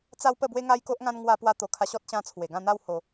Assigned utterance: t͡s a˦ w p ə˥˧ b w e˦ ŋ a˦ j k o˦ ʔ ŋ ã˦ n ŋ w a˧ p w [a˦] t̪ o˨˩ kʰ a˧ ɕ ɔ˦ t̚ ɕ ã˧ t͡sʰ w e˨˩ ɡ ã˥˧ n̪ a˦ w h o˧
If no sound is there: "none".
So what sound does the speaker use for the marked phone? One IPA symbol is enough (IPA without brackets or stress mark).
a˧